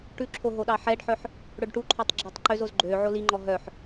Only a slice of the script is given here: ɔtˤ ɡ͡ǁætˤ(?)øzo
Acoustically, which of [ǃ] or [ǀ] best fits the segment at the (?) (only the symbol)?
ǃ